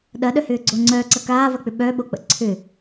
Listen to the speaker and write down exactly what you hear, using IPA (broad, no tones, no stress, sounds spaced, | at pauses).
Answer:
ɗ ɐ ɗ œ h ʏː ɡ͡ǀ o ŋ͡ǀ œː ǀ ɐ k aː v ɐ k͡p ʏ ɓ œ ɓ o k͡p ə̰ ǀʰ ʏ